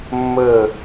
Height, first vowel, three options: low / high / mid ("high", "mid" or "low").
mid